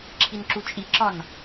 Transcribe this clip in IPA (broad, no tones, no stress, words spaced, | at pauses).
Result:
ǁʰinǁut͡ʃʼiǁɒn